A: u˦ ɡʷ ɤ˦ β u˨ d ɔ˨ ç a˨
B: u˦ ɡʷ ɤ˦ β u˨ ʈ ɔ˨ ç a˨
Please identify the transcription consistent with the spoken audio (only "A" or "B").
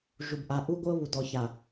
A